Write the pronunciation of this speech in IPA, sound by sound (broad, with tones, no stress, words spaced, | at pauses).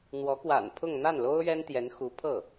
n̪wɔ˧˥ kwa̰˨˩npʰʊ˥˧ŋ n̪a˥˩nlo˥ʊ̯ ɥɛ˥nt̪jɛ˧˥n xu˧˥pʰɤ˥˩